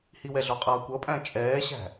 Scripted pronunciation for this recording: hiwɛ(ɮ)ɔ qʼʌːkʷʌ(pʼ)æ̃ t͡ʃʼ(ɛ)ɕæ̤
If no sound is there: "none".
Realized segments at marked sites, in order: ɮ, pʼ, ɛː

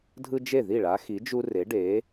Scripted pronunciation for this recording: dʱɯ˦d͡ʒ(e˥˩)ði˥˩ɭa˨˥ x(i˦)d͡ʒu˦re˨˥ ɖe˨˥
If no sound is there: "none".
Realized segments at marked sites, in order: e˥˩, i˨˥

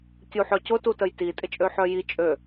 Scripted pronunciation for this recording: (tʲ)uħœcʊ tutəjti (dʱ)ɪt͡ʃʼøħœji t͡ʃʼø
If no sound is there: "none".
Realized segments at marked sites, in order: tʲ, tʼ

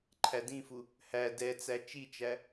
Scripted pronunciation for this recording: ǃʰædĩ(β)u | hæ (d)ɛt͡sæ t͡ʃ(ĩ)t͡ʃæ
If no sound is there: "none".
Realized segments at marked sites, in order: f, d, i

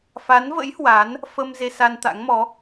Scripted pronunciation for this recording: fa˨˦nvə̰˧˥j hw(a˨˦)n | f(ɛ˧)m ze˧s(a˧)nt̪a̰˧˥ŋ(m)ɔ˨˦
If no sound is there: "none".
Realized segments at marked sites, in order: a˨˦, ə˧, a˧, m

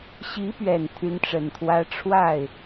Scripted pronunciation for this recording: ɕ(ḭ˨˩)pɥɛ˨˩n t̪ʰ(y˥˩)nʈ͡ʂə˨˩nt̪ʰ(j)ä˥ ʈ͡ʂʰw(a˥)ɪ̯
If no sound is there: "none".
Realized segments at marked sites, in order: i˧˥, y˧˥, w, a˥˩

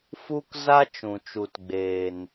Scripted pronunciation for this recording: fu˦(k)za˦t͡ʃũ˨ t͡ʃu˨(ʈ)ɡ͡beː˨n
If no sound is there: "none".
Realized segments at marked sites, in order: k, t

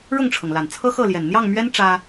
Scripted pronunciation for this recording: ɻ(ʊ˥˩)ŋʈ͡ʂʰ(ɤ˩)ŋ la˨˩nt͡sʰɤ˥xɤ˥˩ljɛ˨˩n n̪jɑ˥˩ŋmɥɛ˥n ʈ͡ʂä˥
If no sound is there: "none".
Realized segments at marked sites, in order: ʊ˥˩, ɤ˩

